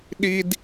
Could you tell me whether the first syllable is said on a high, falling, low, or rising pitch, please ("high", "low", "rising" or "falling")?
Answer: high